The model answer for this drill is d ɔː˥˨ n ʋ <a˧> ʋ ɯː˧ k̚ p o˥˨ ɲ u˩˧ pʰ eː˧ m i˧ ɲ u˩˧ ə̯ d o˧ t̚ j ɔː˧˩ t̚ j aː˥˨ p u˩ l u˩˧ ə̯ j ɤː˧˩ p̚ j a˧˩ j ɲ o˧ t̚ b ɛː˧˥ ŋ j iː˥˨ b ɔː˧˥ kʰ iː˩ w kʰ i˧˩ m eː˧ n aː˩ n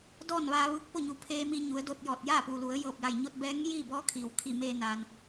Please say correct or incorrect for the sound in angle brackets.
incorrect